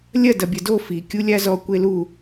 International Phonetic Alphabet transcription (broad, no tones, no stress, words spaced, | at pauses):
lʲɐ dɐbʲɐdo fi kʲulʲazɔ kʷelu